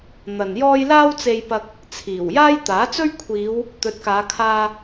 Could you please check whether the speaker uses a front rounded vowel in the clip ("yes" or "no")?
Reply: no